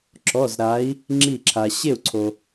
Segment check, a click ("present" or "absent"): present